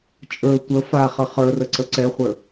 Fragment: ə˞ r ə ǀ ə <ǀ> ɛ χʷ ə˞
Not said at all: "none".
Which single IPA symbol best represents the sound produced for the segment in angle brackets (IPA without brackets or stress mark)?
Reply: ǀ